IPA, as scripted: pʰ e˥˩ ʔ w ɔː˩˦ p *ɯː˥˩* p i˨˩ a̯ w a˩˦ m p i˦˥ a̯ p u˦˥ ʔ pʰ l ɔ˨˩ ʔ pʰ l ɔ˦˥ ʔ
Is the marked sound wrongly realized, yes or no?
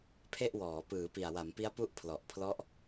yes